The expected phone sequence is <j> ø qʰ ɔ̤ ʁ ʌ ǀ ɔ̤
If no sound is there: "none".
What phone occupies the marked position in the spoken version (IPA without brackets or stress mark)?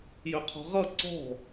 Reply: j